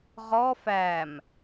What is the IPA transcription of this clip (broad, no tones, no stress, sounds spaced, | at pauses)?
ʁ ɔ f æ m